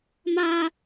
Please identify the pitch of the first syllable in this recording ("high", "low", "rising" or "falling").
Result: high